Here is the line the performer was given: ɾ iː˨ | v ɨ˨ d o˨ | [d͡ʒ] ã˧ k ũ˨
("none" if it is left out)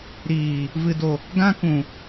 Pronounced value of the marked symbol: ɡ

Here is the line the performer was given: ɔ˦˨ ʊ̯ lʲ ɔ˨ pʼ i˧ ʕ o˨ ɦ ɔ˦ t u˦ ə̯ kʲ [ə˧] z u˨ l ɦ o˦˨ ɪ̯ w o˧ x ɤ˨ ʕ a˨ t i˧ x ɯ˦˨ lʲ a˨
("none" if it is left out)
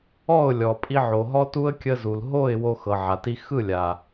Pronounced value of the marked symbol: ə˧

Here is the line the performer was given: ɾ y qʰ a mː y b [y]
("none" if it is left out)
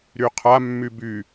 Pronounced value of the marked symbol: y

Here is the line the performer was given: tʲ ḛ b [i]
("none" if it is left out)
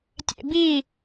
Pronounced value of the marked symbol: i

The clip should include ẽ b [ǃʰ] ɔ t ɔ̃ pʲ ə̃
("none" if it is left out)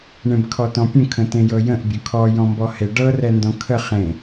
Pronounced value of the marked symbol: kʰ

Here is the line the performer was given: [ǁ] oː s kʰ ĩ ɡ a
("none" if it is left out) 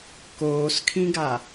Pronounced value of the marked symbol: k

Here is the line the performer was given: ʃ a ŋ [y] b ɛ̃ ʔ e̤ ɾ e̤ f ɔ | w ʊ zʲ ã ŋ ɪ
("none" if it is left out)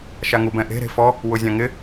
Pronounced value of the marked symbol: u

